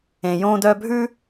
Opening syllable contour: low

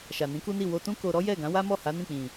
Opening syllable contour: low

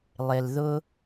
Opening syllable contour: low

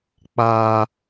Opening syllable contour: high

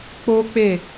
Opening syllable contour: high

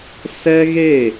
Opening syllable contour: high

